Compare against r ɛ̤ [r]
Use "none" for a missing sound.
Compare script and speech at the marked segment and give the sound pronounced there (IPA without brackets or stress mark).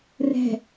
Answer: none